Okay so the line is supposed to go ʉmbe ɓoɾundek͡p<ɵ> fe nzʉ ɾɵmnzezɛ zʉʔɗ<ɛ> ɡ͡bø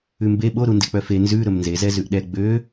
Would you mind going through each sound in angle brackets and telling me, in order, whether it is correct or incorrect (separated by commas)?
incorrect, correct